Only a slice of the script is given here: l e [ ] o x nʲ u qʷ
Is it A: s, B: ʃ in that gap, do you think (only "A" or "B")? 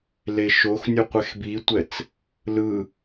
B